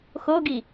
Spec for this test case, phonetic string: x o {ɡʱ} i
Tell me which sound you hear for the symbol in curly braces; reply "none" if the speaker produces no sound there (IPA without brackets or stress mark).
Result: ɡ